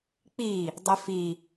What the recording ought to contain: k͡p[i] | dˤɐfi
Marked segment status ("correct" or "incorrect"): correct